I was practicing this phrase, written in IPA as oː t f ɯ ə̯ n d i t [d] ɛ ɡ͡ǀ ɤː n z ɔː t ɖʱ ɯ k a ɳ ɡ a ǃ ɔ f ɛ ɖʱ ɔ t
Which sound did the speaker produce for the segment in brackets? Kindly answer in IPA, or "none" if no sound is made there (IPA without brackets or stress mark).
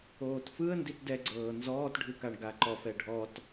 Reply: d